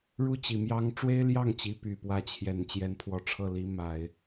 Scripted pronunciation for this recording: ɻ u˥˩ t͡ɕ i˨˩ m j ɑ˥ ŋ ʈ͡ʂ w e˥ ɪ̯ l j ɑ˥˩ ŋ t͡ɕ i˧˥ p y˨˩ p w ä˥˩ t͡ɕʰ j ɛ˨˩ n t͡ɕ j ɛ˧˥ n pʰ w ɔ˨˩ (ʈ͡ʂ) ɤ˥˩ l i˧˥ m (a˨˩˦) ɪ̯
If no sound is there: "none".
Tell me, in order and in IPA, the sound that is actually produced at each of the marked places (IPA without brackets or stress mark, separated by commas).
ʈ͡ʂʰ, a˨˩˦